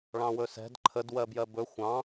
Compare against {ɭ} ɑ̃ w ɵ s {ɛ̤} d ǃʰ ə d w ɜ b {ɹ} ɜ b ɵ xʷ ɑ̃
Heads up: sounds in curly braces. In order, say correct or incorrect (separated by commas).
correct, correct, incorrect